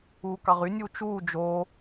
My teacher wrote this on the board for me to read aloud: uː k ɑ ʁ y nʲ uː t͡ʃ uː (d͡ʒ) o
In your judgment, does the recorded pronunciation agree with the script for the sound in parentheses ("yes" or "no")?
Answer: yes